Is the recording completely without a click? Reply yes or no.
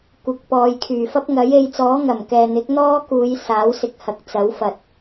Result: yes